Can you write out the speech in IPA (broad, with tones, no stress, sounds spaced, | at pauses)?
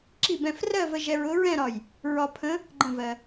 ǁ i˧˩ b ɛ̃˧˩ f r ɜ˥˧ v ə˧ ʒ ɛ˧ ɹ ʊ˧˥ ɹ ɛ̃˥˧ ɾ ɒ˧˩ j | ɹ ɒ˧ pʰ ə̃˧˥ | ɡ͡ǃ ə̃˧˩ v ɜ˩